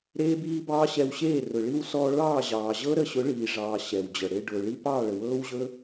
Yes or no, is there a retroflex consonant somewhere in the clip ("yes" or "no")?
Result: yes